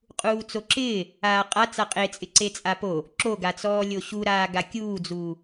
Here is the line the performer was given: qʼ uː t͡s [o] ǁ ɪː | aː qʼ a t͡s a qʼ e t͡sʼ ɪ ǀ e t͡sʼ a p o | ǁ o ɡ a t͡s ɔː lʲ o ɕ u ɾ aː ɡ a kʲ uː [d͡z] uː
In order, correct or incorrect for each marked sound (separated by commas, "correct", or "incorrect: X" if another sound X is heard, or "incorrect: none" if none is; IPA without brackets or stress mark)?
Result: correct, correct